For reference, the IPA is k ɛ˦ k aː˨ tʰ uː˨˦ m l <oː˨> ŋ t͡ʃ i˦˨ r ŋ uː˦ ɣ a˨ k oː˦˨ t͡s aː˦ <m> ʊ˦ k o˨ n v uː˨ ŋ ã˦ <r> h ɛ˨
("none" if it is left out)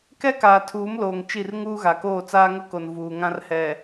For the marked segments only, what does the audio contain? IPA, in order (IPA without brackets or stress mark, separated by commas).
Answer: oː˨, ŋ, r